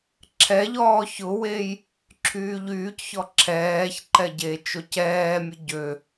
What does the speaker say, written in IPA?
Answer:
ǁʰɛʎɔː çʊwej | ǁʰyːʎyːcçɔ ǁʰɛːçǃɛ ɟet͡ʃoc ɛːmʲʊ ɟø

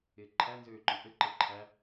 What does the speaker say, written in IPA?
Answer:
ɪːǃʰæ nzøːǃɔ̃ʔɘ ǃɘǃʰæ

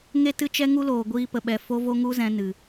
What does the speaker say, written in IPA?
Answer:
ŋe˦tɨ˦t͡ʃɛ˦ ŋu˦loː˨ɡʷiː˧ pə˨ɓɛ˨ fo˦vo˦ ŋu˦zɛ̃˧ nɨ˨

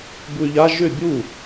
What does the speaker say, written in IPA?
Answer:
buy̯ʎa ʒʏ bʲu

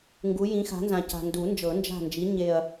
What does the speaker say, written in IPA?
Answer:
ŋɡu˨˥jĩ˨˥ xa̤˨˥nzã˨ca̤˨ ndu˨˩˦nd͡ʒɤ˨˩˦nd͡ʒa̤˦˨nd͡ʒi˨˥ ɲe˦˨ɐ̯

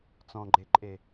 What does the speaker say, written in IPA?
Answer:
t͡sɔ̃ɡ͡ǃeǃʼe

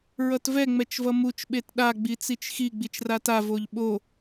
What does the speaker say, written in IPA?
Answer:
ɹʌtvɛ ŋ͡mɛt͡ʃvʌmut͡ʃ ɓetɗa ɡ͡bit͡sit͡ʃxi ɡ͡bit͡ʃrata voʎɓo

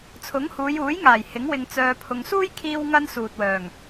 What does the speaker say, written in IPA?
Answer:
t͡sʰʊ˨˥ŋhuː˨˧juː˨˥jŋaː˨˩j hɪ˨˥ŋwɪ˧ŋ t͡sœː˧pʰʊ˧ŋ suː˥jkʰiː˧w ŋɐ˥nsuː˨t̚wœː˨˩ŋ

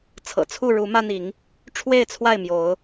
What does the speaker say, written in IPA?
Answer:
t͡sʰɤ̰˨˩t͡sʰu˥˨ ɻu˨˦ mä˦n̪i˨˦ŋ | ʈ͡ʂʰwe˥˨ɪ̯t͡sʰwa˥˨ɪ̯mjo˨˦ʊ̯

